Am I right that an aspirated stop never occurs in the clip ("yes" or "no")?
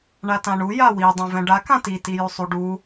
yes